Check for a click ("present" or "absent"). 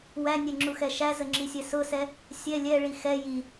present